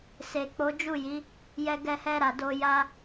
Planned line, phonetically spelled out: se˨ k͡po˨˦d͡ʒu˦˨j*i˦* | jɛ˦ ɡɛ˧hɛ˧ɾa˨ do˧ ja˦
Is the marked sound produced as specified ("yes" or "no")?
no